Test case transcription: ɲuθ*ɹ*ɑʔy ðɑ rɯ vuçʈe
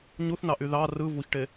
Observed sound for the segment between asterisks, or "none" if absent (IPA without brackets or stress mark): n